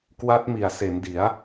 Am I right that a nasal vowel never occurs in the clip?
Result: yes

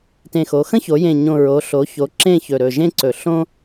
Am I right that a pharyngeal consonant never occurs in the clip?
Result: yes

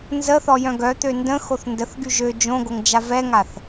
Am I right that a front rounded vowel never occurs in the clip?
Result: no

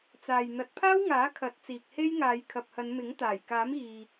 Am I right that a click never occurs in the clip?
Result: yes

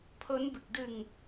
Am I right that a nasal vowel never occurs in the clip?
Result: yes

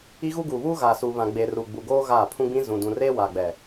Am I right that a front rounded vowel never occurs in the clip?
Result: yes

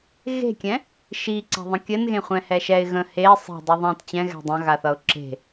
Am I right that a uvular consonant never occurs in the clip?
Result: no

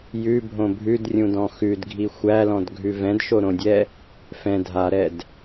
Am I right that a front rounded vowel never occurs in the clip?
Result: yes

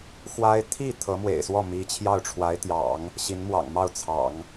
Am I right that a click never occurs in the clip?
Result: yes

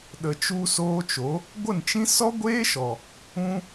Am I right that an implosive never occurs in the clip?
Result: no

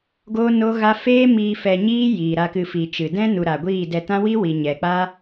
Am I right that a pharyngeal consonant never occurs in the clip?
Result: yes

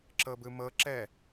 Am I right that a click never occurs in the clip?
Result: no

